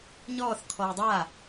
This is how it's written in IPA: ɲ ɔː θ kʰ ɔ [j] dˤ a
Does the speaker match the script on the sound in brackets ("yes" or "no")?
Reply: yes